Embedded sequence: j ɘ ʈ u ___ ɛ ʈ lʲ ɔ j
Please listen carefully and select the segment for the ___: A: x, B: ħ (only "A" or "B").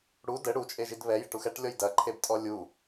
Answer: A